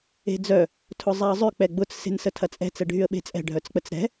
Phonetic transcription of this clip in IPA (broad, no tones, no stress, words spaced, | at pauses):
e̤d͡zœ | tʰʊzˤɛə̯zˤʏ k͡pɛɡ͡bʊt͡s se̤nsətʰɐt͡sʼɛ̤ t͡sɛɖʱyə̯ɓe̤t͡sʼɛ̤ ɖʱœt͡sk͡pət͡sɾɛ̤